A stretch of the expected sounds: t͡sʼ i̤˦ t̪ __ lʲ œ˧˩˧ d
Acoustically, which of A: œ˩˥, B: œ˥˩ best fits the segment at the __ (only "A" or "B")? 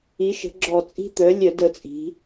A